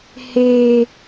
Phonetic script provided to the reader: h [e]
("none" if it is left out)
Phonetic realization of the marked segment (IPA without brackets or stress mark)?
e